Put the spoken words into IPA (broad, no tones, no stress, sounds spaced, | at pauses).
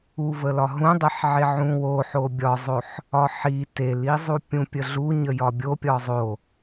u v ə l ɒ ɦ ũ dˤ e ħ ʕ e ʕ ũ w o ħ o bʲ ɒ zˤ o ħ | ɒ ħ i t e l i zˤ u pʲ ũ pʲ ə ɮ u ɲ ə j ɒ bʲ o pʲ ɒ zˤ o